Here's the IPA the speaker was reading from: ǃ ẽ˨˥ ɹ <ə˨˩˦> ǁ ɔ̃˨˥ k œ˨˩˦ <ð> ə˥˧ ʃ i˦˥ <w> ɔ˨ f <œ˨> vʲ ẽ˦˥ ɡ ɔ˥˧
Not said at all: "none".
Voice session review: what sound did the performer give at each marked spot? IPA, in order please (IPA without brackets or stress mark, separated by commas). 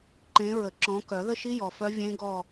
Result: ə˨˩˦, ð, j, œ˦˥